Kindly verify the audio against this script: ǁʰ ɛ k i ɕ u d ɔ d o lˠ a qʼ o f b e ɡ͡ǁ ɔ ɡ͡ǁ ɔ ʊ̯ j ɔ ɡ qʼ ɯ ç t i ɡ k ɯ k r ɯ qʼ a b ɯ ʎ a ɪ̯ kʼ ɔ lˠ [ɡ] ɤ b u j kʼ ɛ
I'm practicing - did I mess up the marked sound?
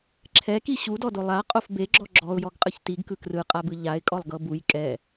no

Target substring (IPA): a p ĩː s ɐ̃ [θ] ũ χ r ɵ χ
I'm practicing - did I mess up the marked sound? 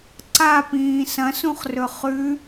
yes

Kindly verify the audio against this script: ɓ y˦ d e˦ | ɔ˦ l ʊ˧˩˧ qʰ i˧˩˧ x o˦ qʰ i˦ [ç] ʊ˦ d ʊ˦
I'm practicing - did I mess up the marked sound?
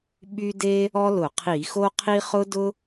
yes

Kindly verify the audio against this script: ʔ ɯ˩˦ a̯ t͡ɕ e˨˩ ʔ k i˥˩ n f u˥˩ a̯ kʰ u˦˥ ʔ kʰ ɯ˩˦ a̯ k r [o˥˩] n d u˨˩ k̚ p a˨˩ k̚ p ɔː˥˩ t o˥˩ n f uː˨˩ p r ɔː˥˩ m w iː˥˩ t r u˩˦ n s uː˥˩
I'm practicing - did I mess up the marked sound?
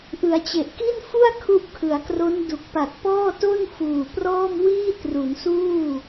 yes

